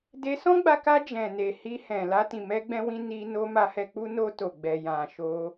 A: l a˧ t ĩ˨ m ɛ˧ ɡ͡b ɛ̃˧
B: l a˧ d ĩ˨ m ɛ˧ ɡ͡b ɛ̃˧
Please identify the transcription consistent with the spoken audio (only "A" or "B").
A